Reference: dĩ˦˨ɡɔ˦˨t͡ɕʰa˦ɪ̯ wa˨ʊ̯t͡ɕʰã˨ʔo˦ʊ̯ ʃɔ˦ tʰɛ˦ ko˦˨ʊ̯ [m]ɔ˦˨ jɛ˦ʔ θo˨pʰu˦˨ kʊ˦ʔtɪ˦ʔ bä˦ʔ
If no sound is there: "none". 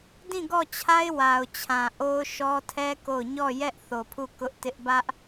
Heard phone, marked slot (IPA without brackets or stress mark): ɲ